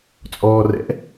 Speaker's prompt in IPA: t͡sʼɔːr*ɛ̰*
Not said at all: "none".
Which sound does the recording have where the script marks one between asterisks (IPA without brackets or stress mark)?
ɛ̰